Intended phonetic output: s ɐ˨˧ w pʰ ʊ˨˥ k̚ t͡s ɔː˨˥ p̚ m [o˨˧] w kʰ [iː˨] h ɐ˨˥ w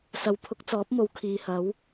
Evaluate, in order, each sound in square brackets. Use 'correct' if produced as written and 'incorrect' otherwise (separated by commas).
correct, correct